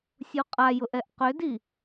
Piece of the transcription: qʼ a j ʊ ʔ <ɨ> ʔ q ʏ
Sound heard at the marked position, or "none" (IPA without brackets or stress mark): ɛ